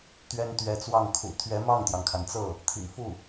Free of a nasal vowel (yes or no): yes